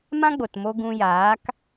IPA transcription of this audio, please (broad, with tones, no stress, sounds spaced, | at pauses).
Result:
m ã˦ ɡ͡b o˨ t m o˧ ɡ ũ˧ j aː˨˦ k